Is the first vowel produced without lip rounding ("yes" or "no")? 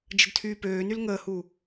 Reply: yes